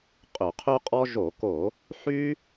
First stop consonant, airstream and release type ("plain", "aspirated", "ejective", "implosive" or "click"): ejective